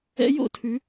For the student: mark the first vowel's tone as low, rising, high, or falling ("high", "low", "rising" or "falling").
rising